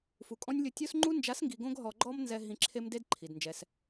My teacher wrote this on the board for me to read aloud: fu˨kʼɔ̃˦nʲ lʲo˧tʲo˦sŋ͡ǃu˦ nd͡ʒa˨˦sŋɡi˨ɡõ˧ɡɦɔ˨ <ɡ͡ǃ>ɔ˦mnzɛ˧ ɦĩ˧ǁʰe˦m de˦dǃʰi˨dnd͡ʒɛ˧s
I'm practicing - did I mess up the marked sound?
no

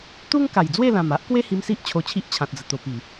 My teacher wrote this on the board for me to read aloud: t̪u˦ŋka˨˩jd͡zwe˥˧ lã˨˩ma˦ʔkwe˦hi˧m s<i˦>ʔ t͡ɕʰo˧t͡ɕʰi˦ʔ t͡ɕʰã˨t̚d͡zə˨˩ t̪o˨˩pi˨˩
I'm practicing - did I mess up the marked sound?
no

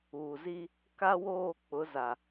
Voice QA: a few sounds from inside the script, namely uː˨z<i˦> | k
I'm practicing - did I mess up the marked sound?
no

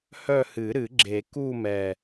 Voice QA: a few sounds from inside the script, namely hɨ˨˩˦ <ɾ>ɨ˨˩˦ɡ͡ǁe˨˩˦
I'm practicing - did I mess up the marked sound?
no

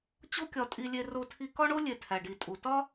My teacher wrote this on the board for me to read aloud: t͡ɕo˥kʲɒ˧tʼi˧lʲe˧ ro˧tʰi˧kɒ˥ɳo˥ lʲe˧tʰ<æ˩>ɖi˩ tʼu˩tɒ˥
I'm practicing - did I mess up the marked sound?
no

